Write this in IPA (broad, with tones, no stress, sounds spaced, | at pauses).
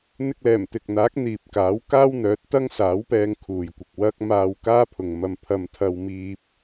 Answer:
n̪ ɪ˧ k̚ l ɛː˨˩ m t̪ ɪ˨ k̚ n̪ aː˨˥ k̚ n̪ iː˨ p̚ k aː˨˥ w k aː˥ w n̪ œː˨˥ t̚ t̪ ɐ˥ ŋ s aː˨˥ w p ɛː˧ ŋ kʰ uː˨ j kʷ ɪ˨ k̚ w ɐ˥ k̚ m aː˧ w k aː˥ pʰ ʊ˨ ŋ m ɐ˧ m pʰ ɐ˧ m t̪ʰ ɐ˧ w m iː˧ p̚